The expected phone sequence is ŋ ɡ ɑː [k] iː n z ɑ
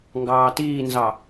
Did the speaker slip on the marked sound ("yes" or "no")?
yes